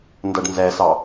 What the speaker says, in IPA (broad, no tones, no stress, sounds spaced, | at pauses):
n d ʌ ɖ n z ɛ s ɑ